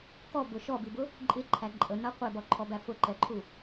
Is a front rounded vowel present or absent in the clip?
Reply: absent